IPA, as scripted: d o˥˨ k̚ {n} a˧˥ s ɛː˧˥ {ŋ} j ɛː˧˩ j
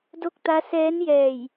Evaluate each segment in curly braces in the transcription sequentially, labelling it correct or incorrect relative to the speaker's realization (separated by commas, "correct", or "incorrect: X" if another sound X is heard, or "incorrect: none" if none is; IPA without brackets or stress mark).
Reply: incorrect: t̪, incorrect: n